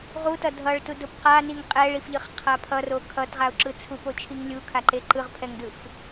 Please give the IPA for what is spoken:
ʁ u t ʌ dʱ ʌ ɭ t u d o p q a n i ŋ qʼ ɛ ɭ i f ʎ ɯ χ qʰ a pʰ ʌ r o kʰ ʌ t ʁ a ʊ̯ ǁ ɯ t͡sʰ u p o t͡ʃʰ i ŋ lʲ u kʰ a ǃ e ǃ ɯ ʁ pʰ ɛ ŋ d ɯ f

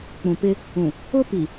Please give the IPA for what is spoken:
k͡p ũ˨ p ɪ˦ | ũ˨ | ʊ˦ p i˨

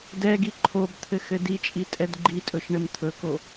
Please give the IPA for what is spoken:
d ɛ ɡ i ǃʰ o b t̪ʰ ɘ x ɘ d i t͡ʃʼ i tʼ ɛ d ɡ͡ǃ i tʼ ɵ ʃ ɳ ɘ m t̪ʰ ɵ k o

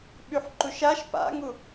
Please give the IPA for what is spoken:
ɓ y ħ ǃ u ʃ a ʃ p a̰ ŋ u

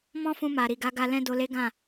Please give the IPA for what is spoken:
m ɔ̃˦ f ũ˧ m a˨ ɾ i˨ ɡ a˨˦ ɡ a˧ l ɛ̃˦ d o˧ l e˦ ɡ ã˦˨

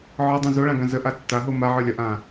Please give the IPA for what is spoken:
ʕ ɒ dˤ õ z o ɭ ã ɡ ã z ə ʔ a tː a ɦ o m a ʕ ə˞ lʲ ɒ ʔ ãː

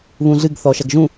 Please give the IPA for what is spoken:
β ũ ɮ ɨ ɡ θ ɔ ʃ ɐ ɡ ʒ ũ

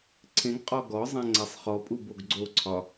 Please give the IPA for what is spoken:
ǀʰ ẽ ɡ qʼ ɔ ɡ ɔ zˤ ẽ ŋ͡ǀ a sˤ χ ɔ pʼ u b o ɡ ɡ͡ǀ o ǀʰ ɒ

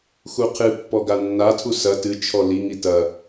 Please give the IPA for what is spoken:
x u qʰ ɨ pː ɔ ɡ a nː a tʰ u s ɐ t ɨ t͡ʃʰ ɔ l i ŋ i t ɐ

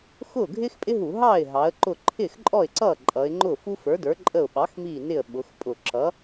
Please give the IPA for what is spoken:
x ʊː˥˩ ɡʱ ɪː˥ x pʼ ɪ˥ ɦ u˧˩˧ ɦ ɑː˥˩ ɪ̯ ɦ ɑ˩˧ ə̯ ǃ ʊ˧˩ ǃʰ ɪː˥˩ x ǃʼ ɔ˥˩ ɪ̯ ǀ ʌː˥˩ ǃʼ ʌː˩˧ ɪ̯ ŋ͡ǃ ʊː˥˩ f u˥ f ə˞˩˥ d ə˞˩˥ ǃʼ ə˧˩ ʊ̯ ɓ ɑ˩˥ x m iː˧˩ n ɪ˧˩ ə̯ ɓ ʊ˩˧ x pʼ ʊ˧˩˧ ǁ ʌ˩˥

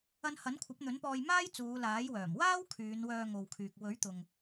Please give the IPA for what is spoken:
ɐ˧ n h ɐ˨˥ n kʷʰ ɐ˨˥ p̚ n̪ ɵ˨˥ n p ɔː˧ j m aː˥ j t͡s uː˨˧ l aː˨˥ j w œː˨˩ m w aː˥ w kʰ yː˨˧ n w œː˧ ŋ o˨ w kʰ yː˨ k̚ w ɵ˨˥ ɥ t̪ ʊ˨ ŋ

